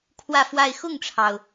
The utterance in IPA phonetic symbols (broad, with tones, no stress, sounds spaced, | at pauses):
kʰ w ä˥˧ f w a˥˧ ɪ̯ x ʊ˥˩ ŋ ʈ͡ʂʰ ɑ˩ ʊ̯